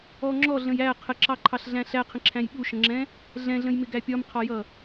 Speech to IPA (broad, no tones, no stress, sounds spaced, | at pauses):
ɔ ŋ͡ǁ ɔ ɮ ə̃ j æ qʰ ə ǁ ɑ ǃʰ ɑ ɬ ɮ æ̃ ɬ æ qʰ ə̃ ǁʰ æ̃ j ɓ u ʃ ə̃ ŋ͡ǁ ɛ̃ | ɮ ɛ̃ ɮ ə̃ j m ɪ ɡ æ pʲ ɒ m qʰ ɒ j ʌ